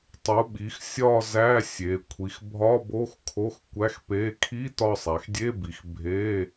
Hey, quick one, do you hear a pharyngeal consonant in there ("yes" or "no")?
no